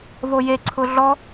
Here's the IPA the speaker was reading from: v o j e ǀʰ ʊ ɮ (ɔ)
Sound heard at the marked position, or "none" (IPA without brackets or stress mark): ɔ